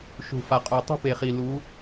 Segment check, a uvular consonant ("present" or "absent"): present